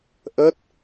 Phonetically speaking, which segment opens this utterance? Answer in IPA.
ʔ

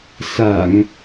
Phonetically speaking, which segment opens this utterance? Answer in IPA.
s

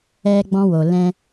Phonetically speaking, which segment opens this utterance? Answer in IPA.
ɛ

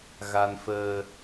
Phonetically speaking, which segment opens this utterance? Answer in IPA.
ɣ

